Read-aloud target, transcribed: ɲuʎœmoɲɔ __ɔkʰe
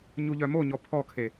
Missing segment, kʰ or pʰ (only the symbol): pʰ